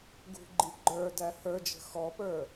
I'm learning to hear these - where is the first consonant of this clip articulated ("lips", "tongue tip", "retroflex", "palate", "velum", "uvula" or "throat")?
velum